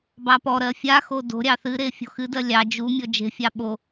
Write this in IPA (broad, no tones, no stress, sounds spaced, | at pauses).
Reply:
b ɑ p ɔ ɾ ɜ fʲ a x o d o̤ ɾʲ ɑ θ ɨ ɾ e fʲ o̤ x ɨ d ɜ lʲ ɑ d͡ʒ u mʲ ɔ d͡ʒ e̤ fʲ ɑ ɓ o